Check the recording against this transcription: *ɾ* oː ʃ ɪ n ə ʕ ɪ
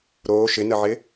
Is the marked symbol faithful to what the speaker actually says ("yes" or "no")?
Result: yes